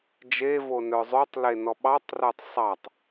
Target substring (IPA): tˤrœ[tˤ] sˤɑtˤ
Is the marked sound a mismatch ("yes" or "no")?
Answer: no